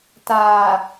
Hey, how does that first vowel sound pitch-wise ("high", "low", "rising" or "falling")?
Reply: low